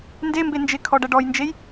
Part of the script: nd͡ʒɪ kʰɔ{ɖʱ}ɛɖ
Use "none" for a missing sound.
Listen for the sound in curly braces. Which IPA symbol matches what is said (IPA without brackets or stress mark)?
ɖ